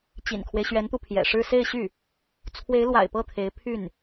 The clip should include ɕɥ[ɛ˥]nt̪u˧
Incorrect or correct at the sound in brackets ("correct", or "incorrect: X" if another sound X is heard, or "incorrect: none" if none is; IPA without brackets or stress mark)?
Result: incorrect: ɛ˧˥